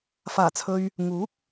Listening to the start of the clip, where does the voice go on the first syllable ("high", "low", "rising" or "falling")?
low